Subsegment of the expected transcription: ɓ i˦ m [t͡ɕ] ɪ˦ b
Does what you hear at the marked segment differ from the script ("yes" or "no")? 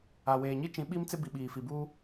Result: yes